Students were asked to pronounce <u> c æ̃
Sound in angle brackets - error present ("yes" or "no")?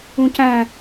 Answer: yes